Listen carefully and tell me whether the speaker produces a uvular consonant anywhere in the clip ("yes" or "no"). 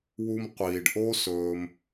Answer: yes